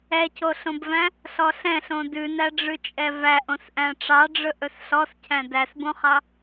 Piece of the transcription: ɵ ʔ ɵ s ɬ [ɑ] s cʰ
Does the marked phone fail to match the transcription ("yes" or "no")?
yes